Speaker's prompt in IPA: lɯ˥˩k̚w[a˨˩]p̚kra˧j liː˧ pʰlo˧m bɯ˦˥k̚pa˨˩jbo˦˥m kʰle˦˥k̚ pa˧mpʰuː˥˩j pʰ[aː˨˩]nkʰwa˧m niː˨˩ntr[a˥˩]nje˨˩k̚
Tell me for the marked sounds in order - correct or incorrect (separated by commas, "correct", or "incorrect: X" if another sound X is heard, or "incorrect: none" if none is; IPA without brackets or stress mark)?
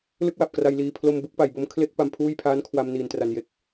correct, incorrect: aː˦˥, incorrect: a˩˦